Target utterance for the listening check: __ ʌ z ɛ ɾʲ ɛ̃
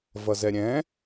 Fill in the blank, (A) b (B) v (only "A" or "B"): B